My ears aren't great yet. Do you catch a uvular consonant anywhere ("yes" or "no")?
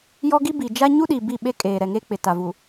no